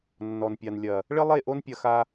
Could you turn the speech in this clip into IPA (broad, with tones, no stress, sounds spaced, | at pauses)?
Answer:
nː ɔ˨ n pʲ a˨ n lʲ ɐ˨ | ɭ ɘ˦ lˠ e˦˨ ʔ o˦ n pʲ ɐ˧ x a˧